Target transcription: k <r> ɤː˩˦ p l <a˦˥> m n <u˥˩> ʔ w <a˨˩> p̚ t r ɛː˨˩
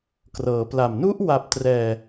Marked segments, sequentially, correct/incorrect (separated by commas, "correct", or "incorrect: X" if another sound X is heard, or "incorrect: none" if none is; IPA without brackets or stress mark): correct, incorrect: a˨˩, incorrect: u˦˥, correct